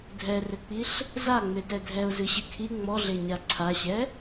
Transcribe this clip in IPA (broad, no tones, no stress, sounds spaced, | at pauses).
dʱ ɛ r ɘ k͡p i ɬ | z a ŋ͡m e t ɛ dʱ ɛ ʊ̯ z ɨ ɕ ɨ kʰ i ŋ͡m ɔ ɮ e ɲ a ǀʰ a ɕ ɛ